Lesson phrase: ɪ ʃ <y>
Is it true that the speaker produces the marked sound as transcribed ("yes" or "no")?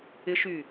yes